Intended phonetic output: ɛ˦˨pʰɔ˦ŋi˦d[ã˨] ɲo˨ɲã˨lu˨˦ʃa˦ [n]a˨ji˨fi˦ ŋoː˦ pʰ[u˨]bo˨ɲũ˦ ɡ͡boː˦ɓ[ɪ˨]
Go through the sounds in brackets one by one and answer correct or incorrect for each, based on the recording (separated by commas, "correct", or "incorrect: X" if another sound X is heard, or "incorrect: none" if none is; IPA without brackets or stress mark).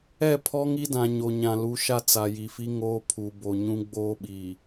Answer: correct, incorrect: t͡s, correct, incorrect: i˨